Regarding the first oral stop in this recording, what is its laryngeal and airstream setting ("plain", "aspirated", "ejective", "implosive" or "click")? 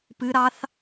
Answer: plain